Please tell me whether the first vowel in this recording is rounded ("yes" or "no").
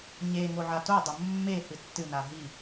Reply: no